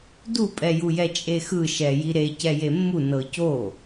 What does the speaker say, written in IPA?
d u pʼ ɛ j u j ɛ t͡ʃʼ e x ɯ ʃ ɛ j i ɾ e c ɛ j e mː u n ɤ c o

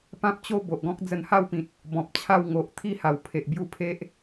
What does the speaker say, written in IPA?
p ã˦ p̚ t͡ɕ o˦ b o˨ ʔ ɡ ɔ̃˦ k̚ d͡z ə˧ n h a˥˧ w p ĩ˨ t̚ | b ɔ̃˨ p̚ t͡ɕʰ a˥˧ w ŋ o˨ ʔ t̪ʰ i˦ h a˨˩ w pʰ e˨ ʔ b j u˥˧ pʰ e˦ ʔ

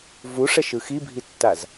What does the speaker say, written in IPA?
v u ʂ ɛ ʃ ɯ x i bʱ i tː a z

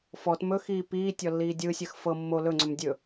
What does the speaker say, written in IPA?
f ɔ t m ɵ x iː p iː tʲ ɔ lː iː dʲ ɯ sʲ ɐ x f ɤ mː o l ɵ ŋ͡ǀ ɵ m dʲ ɵ

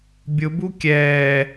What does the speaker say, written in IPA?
bʲ ʊ b u kʲ ɛː

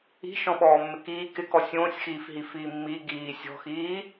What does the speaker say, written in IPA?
i̤ ʃ ɔ̃ ɓ ɔː mː ɪ k iː k ɪ k ɔ sʲ õː sʲ x iː f ɦ i f iː mː i ɡ iː sʲ ɔ̤ x iː

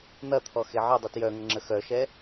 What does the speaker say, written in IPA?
n̪ ɐ t̪ʰ ɔ x e ʕ ə dˤ ɯ t j œ ŋ ə ŋ͡ǁ ə x œ ʃ ɛ

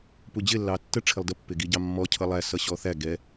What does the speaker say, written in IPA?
p u d͡ʑ ɪ lː ɑ tː ə ʈ͡ʂʰ ɪ lˠ d ə pː ɪ ɡ i ɟ ɑ mː ɔ cʰ ʌ lˠ æ s ʌ ɕ ɔ θ æ ɡ ɛ

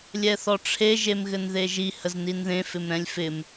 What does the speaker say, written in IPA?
lʲ ɛ θ ɔ ʈ͡ʂʰ e ʒ e m ɣ ɘ n ð e ʒ i h ə z n i n ð ẽ f ɪ m ɾ ɛ̃ lʲ f ɪ m

